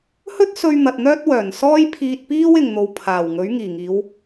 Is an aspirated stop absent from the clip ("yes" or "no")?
no